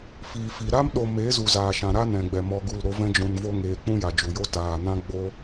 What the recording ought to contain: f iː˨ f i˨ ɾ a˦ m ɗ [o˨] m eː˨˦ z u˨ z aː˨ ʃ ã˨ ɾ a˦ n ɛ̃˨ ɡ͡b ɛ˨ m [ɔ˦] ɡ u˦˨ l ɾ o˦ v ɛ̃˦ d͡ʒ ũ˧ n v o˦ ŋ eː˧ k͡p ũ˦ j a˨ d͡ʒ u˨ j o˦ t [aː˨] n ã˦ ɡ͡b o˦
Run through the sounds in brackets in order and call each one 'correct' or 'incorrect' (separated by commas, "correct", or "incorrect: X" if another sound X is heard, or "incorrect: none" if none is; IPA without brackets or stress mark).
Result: correct, incorrect: ɔ˧, correct